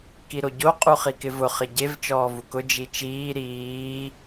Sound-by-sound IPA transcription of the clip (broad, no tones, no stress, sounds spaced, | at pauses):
k i ɾ o ɟ o qʼ u χ i k ɪ v ʊ χ ɪ ɟ e v t͡ʃ ɔː v u k ʊ d͡ʒ i t͡ʃ iː ɾ iː